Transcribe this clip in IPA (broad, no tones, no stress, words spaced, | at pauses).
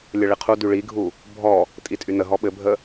lʲəɭiqʰudy ɭiɡʱu | bʱɔ | tʼitʼynəɦɔ ɓɘbʱə